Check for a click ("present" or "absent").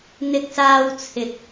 absent